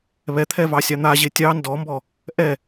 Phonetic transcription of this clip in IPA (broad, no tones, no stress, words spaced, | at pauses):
βɛt̪ʰɛvɑsʲɑ n̪aʑe tʲɑ ndɔmbɔ | ʔɛ